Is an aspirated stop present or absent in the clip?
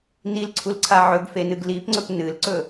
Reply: present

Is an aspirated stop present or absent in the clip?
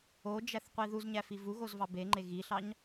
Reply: absent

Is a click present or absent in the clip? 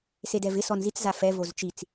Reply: absent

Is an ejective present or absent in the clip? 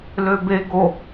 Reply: absent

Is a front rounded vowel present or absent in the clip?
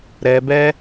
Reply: absent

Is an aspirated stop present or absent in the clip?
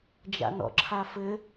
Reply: present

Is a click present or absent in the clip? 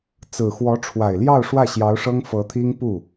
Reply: absent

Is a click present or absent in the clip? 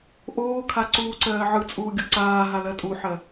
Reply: present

